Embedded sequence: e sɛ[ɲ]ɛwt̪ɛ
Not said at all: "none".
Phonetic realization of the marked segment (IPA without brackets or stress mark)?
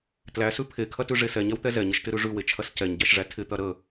ɲ